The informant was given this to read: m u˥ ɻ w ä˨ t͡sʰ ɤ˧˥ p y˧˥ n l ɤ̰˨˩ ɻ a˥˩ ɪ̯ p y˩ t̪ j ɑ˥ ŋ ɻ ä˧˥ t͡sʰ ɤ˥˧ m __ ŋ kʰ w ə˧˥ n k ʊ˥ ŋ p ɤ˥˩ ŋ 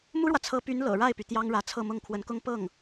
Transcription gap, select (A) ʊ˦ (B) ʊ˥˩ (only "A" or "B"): B